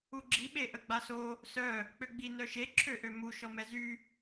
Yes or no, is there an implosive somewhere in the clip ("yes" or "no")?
yes